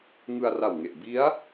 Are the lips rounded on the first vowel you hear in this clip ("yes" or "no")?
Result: no